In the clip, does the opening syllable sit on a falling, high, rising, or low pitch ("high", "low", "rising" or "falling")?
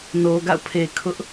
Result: low